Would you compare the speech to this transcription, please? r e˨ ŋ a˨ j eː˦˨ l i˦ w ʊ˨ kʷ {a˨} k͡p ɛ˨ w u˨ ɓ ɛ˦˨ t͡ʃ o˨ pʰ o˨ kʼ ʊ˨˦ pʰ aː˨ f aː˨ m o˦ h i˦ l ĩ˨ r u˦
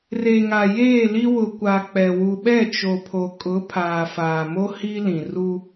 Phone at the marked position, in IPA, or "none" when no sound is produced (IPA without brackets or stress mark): a˨